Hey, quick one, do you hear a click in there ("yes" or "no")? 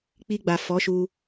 no